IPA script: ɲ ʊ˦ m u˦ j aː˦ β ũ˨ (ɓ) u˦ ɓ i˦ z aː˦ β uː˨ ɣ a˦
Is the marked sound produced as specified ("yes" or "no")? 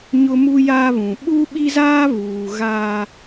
yes